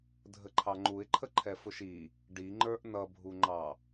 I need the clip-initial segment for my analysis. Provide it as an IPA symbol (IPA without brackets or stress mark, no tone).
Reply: dʱ